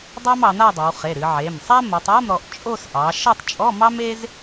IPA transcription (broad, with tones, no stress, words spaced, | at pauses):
dˤɑ˥mɑ˩˧n̪a˥˧dˤø˩˧w χe˩˧˩ɾɨ˩˧ʕe˩˧˩m sˤa˥ mo˩˧tˤa˧˥˧mɾɔ˩˧ʔ t͡ʃʼo˥˧s ʔɑ˩˧ ʃʌ˥˧tˤt͡ʃʼɔ˧˥˧mɑ˥me˥z